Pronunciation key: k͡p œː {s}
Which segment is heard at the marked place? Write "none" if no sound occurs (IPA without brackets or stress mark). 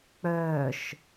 ʃ